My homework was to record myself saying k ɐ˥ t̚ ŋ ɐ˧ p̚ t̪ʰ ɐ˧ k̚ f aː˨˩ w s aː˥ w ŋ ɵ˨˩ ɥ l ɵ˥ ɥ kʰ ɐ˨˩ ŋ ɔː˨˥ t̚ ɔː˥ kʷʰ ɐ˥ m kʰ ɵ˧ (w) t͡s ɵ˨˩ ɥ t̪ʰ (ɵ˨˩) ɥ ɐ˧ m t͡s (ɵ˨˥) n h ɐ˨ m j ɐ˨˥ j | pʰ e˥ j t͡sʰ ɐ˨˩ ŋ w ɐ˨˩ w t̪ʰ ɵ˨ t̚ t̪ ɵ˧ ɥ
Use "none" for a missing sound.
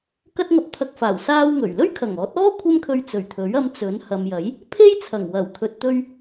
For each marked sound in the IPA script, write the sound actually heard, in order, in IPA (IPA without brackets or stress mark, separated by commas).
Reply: ɥ, ɵ˨˥, ɵ˨˥